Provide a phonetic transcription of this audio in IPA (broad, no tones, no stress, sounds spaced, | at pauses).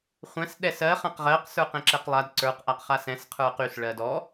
χʷ ɛ̃ s ɗ ɛ s ɜ χ ã q ʁ ɜ q s ə˞ q ɛ̃ ǁ ɛ q lˠ a d ǀ ə˞ q ʔ a q χ a s ɛ̃ s qʰ ə˞ q y s ɭ ɜ d ɔ